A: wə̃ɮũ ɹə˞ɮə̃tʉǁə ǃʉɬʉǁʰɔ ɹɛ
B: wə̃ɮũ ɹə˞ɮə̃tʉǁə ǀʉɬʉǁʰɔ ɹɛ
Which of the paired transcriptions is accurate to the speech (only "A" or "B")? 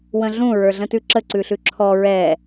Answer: B